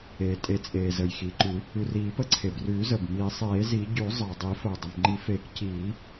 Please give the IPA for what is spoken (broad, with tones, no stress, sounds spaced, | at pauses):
eː˩ tʼ e˨˩˦ t͡sʼ eː˩ z ə˩ j x iː˩ ǃ ʉ˨˩˦ | ʉ˩ r iː˨˩˦ p ə˨˩˦ ǀʰ e˩ b r ʉː˨˩˦ z ə˩ b m iː˨˩˦ sˤ eː˨˩˦ z i˨˩˦ ɟ ʉ˨˩˦ zˤ əː˩ dˤ i˨˩˦ f əː˩ dˤ ə˩ m ŋ͡ǃ i˨˩˦ f eː˨˩˦ k c iː˨˩˦